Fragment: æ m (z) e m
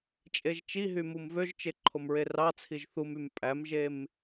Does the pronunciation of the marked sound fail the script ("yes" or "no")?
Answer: yes